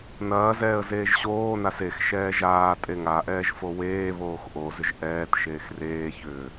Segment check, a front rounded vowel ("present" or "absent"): present